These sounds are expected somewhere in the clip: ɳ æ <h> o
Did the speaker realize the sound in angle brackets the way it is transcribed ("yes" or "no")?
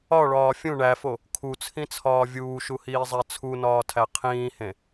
no